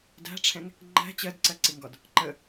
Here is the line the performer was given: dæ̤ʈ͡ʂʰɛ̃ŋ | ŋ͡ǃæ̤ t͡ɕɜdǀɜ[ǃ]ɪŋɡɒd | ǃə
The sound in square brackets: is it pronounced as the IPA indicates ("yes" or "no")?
no